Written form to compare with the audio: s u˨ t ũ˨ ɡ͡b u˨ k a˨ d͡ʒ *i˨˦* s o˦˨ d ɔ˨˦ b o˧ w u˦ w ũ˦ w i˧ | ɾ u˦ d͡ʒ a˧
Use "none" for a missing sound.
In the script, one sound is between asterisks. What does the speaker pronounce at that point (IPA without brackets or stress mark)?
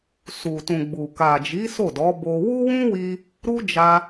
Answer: i˨˦